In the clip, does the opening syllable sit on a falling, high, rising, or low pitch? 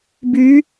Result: rising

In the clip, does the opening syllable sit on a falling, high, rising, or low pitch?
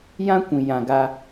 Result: high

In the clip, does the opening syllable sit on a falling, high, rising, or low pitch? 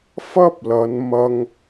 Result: high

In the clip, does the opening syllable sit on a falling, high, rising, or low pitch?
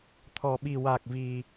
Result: low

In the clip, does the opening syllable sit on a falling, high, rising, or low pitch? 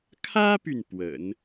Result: high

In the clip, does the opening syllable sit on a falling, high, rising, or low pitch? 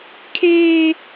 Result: high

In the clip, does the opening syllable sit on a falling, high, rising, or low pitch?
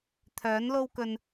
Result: rising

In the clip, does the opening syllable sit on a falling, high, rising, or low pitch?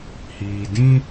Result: low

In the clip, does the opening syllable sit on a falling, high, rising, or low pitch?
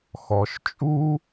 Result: low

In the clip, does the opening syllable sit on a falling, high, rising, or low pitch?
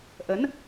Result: rising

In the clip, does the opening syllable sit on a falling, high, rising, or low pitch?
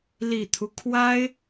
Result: low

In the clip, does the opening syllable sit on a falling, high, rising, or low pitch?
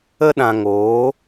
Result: high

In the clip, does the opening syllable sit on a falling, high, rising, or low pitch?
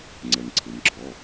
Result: low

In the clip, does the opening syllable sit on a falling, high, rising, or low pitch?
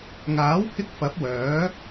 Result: rising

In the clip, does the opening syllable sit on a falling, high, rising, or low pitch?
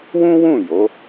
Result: high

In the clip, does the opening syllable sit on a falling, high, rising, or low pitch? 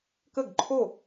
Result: falling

